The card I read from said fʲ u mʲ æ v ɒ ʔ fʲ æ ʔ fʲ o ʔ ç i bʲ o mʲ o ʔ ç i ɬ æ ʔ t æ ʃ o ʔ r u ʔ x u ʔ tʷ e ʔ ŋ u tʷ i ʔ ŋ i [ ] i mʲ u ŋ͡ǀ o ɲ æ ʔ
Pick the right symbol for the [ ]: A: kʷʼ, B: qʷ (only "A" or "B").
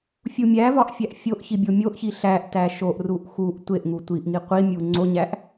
B